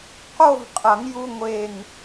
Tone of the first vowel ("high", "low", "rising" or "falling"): falling